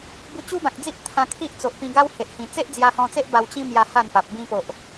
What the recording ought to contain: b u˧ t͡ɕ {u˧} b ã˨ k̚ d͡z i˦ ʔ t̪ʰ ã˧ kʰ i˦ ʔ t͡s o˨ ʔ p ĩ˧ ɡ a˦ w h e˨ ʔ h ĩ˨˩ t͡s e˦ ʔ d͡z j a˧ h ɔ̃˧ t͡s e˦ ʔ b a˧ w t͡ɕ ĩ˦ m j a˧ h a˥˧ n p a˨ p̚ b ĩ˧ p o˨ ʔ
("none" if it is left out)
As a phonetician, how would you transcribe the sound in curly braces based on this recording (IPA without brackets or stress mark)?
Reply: u˦